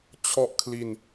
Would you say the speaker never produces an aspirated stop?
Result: no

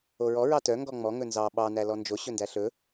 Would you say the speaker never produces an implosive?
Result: no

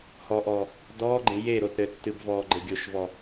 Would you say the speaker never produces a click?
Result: no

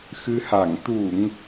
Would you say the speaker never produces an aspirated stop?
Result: yes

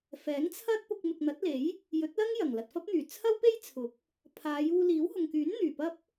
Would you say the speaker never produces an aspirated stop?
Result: no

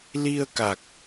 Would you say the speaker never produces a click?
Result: yes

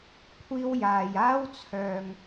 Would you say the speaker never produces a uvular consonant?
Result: yes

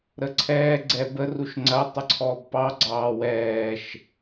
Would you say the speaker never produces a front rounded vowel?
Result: yes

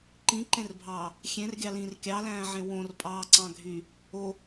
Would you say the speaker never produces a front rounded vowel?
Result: no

